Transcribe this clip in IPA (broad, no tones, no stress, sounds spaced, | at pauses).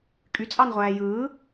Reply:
kʼ y t͡sʼ ɑ n ʁʷ æː j ɯː